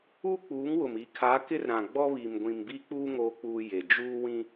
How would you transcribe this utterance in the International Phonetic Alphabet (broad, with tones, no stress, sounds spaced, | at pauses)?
uː˦ k͡p uː˨˦ ŋ w ʊ˨ m i˨ kʰ a˨˦ k ɪ˦ r ɾ ã˨ ɡ͡b ɔ˦ β i˨ m ɡʷ ĩ˨ m b i˦ k͡p uː˦ ŋ oː˦ k͡p uː˦ j e˨ d͡ʒ uː˦ w ĩ˦